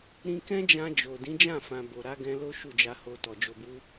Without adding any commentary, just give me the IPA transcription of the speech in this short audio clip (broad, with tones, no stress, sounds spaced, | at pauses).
ɾ ĩ˧ k ɛ̃˦ d͡ʒ ã˧ d͡ʒ o˨ d ĩ˨˦ d͡ʒ ã˦˨ f ã˨ b o˨ ɾ a˨˦ ɡ ɛ̃˧ l o˦ ʃ u˦˨ d͡ʒ a˧ h o˧ t ɔ˨ d͡ʒ o˨ b u˨˦